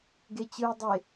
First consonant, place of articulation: velar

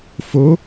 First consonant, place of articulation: labial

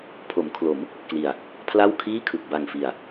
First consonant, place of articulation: labial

